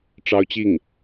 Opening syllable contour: high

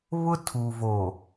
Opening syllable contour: high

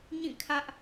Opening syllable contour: falling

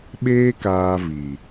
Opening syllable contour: high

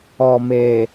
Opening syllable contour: low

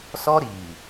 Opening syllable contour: high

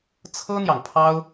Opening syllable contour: high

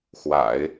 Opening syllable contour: low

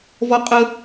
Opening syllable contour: high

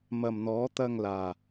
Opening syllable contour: low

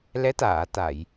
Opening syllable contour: rising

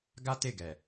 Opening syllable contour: high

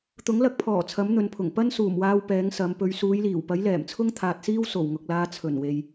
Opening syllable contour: rising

